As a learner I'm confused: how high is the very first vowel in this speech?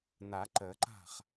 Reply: low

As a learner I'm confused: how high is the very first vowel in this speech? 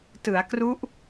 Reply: high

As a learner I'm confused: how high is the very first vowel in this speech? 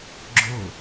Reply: high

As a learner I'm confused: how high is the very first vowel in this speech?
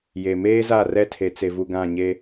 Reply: mid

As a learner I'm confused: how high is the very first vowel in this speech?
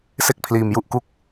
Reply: mid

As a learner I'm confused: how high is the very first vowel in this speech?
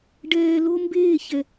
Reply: mid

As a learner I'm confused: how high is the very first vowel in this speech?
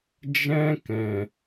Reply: mid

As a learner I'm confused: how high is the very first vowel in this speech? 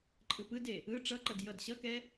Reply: high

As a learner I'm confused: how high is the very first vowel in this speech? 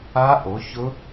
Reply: low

